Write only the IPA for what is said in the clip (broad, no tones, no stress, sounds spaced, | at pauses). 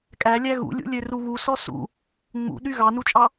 kʼ æ lʲ æ ɣ ṵ lʲ ṵ lʲ ø r u β u s ɔ s ṵ | ŋ͡m ṵ ɗ y ɣ ɑ n u t͡ʃʼ ɑ